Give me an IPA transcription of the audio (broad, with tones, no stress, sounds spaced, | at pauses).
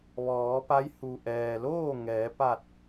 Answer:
ʋ ɔː˩˧ p a˧˥ j h u˩ ʔ ɛː˩ l oː˥˨ ŋ ɛː˩˧ p a˧˩ t̚